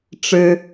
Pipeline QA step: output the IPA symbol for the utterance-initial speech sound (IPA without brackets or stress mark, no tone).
ʈ͡ʂ